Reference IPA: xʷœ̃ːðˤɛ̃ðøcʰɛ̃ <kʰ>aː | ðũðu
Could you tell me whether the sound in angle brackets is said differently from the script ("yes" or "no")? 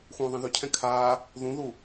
no